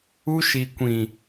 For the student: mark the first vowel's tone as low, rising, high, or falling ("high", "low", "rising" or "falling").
high